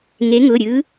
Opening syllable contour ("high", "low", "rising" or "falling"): rising